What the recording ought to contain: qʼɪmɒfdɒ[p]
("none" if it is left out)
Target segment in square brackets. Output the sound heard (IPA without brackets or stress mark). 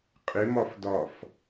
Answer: f